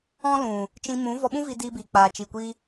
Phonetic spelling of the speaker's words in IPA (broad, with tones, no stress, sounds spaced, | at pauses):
ɔ̃˦ l ũ˨ | t͡ʃ ĩ˧ m ũ˨˦ v ɔ˧ ɓ ũ˦ v i˧ d iː˧ b iː˨ k͡p aː˨ t͡ʃ i˨ kʷ i˧